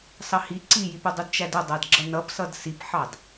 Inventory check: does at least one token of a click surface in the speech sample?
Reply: yes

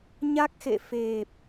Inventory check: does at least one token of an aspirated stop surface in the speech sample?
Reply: no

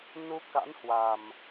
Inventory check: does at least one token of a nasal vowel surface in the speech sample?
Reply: no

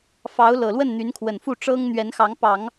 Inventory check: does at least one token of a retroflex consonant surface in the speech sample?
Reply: yes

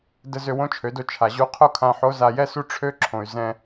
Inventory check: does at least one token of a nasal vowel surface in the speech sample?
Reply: yes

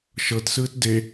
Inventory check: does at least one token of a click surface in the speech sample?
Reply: no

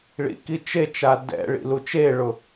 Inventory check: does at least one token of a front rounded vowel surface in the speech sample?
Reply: no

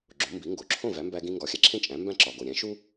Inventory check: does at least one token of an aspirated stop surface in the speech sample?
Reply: yes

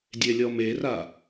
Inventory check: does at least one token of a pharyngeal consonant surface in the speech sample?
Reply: no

